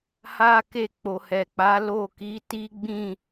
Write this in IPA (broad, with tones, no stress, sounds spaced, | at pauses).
h a˦ k e˦˨ k͡p o˨ h ɛ˨ k͡p a˨˦ l o˦˨ k i˨˦ t i˦ ɡ͡b ĩ˦˨